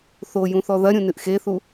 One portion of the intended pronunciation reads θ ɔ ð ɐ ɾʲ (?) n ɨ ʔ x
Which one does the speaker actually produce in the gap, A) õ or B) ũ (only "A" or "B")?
B